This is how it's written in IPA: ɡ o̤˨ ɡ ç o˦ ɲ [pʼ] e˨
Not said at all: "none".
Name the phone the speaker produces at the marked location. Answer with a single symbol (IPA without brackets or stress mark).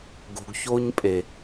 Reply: pʼ